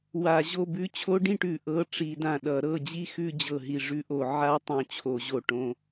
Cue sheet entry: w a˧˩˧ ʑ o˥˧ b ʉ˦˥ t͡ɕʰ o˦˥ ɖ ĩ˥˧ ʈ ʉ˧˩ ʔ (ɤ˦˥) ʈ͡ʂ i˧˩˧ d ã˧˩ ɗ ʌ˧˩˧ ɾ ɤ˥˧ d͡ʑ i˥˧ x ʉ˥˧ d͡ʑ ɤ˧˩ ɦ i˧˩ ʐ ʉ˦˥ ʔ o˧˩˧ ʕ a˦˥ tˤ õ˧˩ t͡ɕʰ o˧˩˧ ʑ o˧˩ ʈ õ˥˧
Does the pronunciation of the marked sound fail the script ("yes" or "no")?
no